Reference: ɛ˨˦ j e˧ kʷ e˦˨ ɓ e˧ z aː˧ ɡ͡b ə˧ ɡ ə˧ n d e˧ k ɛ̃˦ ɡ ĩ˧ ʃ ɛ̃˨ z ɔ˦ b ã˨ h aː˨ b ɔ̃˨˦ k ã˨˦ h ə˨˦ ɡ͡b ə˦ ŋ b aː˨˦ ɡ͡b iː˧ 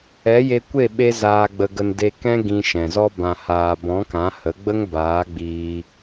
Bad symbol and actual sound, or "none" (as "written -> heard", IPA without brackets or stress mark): none